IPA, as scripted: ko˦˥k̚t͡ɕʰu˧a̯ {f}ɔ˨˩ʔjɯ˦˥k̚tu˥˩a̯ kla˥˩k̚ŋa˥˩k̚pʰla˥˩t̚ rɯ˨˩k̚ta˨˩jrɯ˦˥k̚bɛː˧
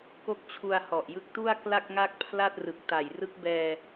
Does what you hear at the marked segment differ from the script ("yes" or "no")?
yes